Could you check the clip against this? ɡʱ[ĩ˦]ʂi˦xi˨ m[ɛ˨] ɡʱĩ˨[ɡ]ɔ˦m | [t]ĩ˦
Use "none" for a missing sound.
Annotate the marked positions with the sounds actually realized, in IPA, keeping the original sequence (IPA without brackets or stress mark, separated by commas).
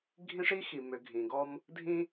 ĩ˦, ʏ˨, ɡ, dʱ